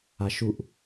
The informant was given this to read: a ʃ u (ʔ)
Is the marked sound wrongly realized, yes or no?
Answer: no